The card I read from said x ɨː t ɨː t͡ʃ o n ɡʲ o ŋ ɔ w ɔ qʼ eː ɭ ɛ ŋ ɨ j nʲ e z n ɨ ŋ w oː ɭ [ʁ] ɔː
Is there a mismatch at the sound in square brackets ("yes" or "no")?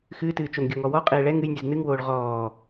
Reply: no